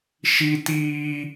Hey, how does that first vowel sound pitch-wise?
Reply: high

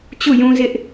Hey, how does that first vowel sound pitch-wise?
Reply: falling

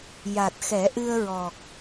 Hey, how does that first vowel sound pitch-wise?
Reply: low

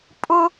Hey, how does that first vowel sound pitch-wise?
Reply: high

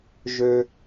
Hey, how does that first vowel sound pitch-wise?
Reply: high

